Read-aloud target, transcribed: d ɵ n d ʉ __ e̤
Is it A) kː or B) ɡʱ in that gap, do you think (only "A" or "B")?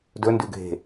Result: B